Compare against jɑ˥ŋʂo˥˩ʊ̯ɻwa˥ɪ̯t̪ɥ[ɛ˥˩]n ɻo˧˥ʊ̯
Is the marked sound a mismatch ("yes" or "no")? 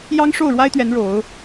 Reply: yes